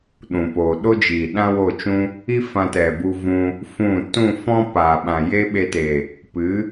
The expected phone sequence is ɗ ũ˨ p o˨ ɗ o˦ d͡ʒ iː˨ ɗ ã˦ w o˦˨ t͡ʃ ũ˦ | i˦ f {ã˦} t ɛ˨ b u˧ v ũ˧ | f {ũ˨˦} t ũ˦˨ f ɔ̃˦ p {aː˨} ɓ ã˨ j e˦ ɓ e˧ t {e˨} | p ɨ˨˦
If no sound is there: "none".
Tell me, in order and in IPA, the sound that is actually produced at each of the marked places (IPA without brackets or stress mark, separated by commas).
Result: ã˧, ũ˦˨, aː˨, e˨